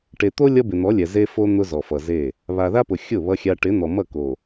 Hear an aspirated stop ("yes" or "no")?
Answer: no